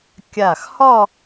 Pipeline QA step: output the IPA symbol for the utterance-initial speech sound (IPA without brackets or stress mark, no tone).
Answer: kʲ